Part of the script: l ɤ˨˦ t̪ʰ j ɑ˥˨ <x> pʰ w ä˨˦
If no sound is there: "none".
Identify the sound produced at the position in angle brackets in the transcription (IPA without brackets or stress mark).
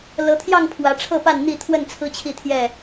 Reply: ŋ